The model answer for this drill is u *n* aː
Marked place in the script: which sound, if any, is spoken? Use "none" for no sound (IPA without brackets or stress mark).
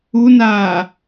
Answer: n